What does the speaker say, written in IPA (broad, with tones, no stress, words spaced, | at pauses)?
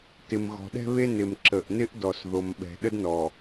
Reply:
tɪ˨mɣɔ̤˨ɗɛ̤˦βe˦ nɪ˨mǁə˨ʔnɪ˦ʔdɔ˨s ðo˨mɓɛ̤˨ ɗə˦dnɔ˨